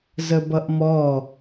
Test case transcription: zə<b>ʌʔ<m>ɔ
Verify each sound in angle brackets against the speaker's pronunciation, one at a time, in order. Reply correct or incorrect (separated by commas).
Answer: correct, correct